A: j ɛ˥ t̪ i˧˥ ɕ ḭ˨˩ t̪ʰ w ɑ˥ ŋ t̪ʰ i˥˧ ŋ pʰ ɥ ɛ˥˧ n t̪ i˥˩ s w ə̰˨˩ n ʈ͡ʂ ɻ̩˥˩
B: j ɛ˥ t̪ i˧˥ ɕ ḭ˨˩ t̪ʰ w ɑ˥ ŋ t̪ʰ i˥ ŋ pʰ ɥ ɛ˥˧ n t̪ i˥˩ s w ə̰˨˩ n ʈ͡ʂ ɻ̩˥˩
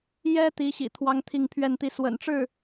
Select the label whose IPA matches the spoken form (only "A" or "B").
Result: A